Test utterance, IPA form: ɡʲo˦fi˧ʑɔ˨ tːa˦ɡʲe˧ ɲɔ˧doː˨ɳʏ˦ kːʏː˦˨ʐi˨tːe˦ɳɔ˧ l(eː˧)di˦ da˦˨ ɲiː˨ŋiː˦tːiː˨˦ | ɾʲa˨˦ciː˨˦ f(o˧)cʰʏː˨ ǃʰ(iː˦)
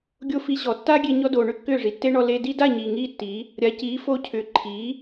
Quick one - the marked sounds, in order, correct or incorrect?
incorrect, correct, incorrect

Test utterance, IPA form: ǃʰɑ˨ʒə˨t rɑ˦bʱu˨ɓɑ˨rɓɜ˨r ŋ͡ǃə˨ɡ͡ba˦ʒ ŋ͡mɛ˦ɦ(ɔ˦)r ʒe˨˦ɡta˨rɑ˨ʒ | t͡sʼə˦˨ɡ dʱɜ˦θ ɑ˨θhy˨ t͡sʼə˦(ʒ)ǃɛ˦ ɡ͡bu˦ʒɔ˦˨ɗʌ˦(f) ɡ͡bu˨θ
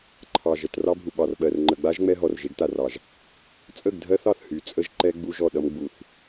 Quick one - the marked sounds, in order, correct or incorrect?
incorrect, correct, incorrect

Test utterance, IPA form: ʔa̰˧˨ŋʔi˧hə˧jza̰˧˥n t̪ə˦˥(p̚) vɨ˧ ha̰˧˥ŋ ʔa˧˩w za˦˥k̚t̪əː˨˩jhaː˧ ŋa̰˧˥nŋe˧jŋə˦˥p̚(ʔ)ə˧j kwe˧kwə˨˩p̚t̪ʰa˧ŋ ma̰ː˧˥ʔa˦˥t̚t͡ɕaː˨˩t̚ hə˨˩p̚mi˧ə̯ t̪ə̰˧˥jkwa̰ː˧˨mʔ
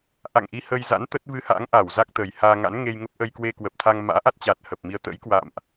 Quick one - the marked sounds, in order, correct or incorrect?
incorrect, correct

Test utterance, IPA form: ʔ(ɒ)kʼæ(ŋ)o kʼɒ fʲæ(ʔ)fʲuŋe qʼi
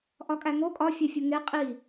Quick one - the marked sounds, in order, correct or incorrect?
correct, correct, incorrect

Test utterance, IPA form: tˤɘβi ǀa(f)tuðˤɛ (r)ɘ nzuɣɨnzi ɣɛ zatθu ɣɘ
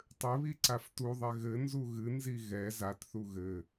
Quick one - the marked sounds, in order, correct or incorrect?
correct, incorrect

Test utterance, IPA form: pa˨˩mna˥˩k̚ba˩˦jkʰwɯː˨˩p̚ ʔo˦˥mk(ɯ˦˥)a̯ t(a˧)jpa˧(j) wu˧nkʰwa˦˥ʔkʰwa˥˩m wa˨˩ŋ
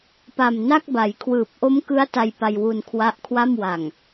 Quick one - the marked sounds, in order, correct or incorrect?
correct, correct, correct

